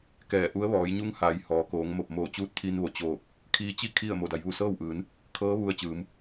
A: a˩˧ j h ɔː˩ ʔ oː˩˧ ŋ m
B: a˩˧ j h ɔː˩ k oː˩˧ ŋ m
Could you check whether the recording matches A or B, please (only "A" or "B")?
B